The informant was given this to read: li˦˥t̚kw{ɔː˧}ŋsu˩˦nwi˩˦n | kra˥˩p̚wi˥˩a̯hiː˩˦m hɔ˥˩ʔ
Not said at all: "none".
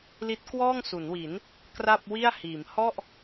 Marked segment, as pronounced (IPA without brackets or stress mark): ɔː˥˩